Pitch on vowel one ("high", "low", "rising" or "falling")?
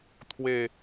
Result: falling